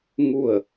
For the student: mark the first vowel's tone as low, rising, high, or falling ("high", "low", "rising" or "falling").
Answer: falling